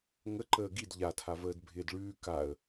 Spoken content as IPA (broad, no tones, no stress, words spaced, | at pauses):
ŋə ǃəːɡid ʎatʰavəːd bʱɪːdɭʉː kaə̯